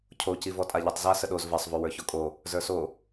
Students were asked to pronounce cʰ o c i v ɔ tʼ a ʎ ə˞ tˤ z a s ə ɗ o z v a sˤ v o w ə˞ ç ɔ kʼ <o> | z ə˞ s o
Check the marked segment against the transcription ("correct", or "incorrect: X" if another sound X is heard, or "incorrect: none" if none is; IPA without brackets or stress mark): correct